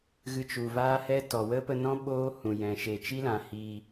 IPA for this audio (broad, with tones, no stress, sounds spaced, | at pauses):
ɣ ɨ˧ t͡ʃ u˨ v aː˦ h ɛ˦ t ɔ˨ w ə˦ p ə˧ n ɔ̃˦ ɓ oː˦ h ũ˨ j ɛ̃˨ ʃ eː˨ t͡ʃ i˦ l ã˨ h i˧